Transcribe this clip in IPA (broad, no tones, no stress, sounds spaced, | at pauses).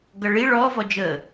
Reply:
ɡ ʌ ɭ i ɭ ɔ v ɔ d͡ʒ ə